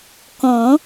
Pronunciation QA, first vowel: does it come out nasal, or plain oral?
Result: nasal